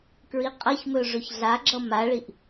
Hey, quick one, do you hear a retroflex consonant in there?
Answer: yes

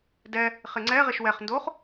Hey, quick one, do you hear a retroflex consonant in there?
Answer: no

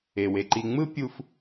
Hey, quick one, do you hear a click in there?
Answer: yes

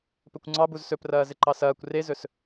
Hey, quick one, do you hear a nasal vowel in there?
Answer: no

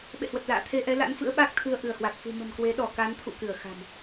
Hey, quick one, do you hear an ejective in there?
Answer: no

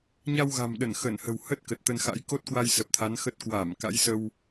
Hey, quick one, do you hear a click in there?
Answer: no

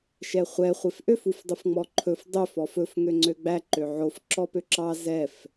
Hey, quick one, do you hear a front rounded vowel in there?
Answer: yes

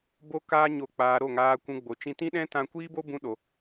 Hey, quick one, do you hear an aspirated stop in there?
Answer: no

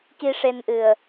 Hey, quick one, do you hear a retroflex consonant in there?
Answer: yes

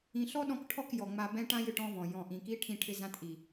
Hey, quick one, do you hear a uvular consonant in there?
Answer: no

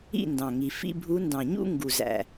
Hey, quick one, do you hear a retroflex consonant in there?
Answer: no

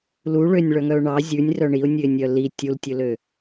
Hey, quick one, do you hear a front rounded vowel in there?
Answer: yes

